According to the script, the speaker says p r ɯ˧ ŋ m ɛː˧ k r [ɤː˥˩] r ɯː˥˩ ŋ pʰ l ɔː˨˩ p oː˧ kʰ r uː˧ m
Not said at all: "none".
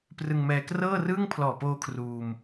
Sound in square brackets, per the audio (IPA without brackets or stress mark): ɤː˥˩